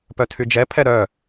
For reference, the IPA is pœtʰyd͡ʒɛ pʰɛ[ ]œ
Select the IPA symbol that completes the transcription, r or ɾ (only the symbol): ɾ